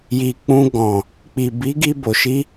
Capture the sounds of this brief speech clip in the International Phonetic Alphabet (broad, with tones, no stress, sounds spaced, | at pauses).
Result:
j i˨ k͡p ũ˧ ɡ ɔ̃˨ | k͡p i˨ b i˨˦ ɡ i˧ b o˨ ʃ i˧